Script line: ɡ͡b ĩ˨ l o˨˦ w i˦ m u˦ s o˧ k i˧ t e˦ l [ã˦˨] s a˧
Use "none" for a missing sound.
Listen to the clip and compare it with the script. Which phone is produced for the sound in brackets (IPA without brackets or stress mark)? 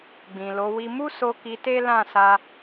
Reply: ã˦˨